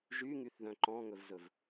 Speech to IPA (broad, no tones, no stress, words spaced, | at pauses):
ʒyŋyθðœ̃ ǃɔ̃ŋɵvzɵv